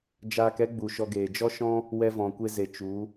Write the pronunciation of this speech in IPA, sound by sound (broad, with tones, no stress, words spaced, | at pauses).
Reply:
d͡ʒaː˧kɛ˦ɡ͡bu˨ ʃɔ˧ ɡeː˨ d͡ʒɔ˦ʃɔ̃˦ | wɛ˧vɔ̃˨kʷe˧ze˨ t͡ʃu˨˦